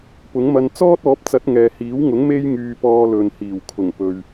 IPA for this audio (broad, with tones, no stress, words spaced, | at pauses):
pʊ˨˥ŋmɐ˧n t͡sɔː˥t̚ɔː˨˥p̚t͡sɐ˨˥t̚ŋɛː˨ hiː˨˥wŋʊ˨˥ŋ me˧jŋyː˨ pɔː˧lɵ˨nhiː˨˩w kʰʊ˨˩ŋpɵ˨ɥ